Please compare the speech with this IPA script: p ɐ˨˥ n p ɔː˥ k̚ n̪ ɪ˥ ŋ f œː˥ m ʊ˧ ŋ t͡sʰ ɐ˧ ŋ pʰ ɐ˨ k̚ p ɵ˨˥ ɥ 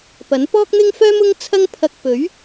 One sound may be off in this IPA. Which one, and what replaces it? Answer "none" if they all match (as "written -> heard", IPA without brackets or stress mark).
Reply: none